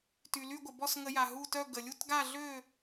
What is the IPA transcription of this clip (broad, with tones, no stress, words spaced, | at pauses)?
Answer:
ty˩ly˦˨ɡʷə˩bɔ˦˨s ŋə˧˩˧ja˩ ɦu˦˨tœ˦˨ ɡə˩lʲu˦˨tɡa˦˨ɮø˦˨